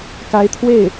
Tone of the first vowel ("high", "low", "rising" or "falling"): rising